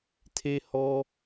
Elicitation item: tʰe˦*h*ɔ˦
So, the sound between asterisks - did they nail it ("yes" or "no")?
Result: yes